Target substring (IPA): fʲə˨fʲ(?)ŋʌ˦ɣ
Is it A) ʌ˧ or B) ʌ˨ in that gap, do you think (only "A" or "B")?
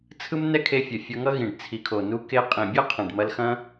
A